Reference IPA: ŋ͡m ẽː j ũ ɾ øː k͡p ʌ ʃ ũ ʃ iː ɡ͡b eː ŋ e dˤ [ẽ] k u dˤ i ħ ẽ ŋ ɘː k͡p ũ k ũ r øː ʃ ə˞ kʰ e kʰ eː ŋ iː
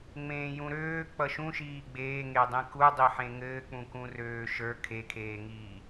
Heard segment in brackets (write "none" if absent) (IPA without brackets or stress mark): ẽ